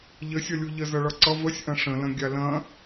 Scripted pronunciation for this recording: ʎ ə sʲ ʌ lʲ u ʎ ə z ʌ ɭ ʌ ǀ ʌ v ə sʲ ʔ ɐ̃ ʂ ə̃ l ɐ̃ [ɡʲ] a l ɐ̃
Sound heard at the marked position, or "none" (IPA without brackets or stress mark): ɡʲ